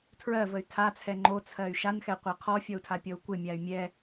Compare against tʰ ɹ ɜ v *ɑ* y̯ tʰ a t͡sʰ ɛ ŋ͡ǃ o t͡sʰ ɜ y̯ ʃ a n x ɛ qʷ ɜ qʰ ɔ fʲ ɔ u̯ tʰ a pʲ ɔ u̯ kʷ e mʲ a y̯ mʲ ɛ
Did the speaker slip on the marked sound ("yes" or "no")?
yes